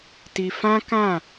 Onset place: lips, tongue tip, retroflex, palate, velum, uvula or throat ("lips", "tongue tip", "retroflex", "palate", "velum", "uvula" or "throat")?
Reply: tongue tip